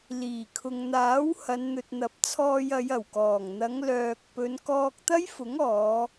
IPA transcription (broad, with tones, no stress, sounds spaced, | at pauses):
l iː˨˩ kʰ ʊ˨ ŋ n̪ aː˨˥ w h ɐ˨˧ n n̪ ɵ˨ t̚ n̪ ɐ˨˥ p̚ t͡sʰ ɔː˧ j ɐ˨˧ j ɐ˨˩ w k ɔː˨˩ ŋ n̪ ɐ˨˧ ŋ l œː˨ k̚ p ɵ˨˧ n k ɔː˧ k̚ t̪ ɐ˥ j f ʊ˨˥ ŋ ɔː˨˧